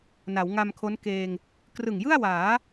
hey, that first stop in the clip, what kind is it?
aspirated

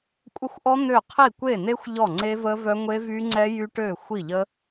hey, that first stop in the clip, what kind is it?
ejective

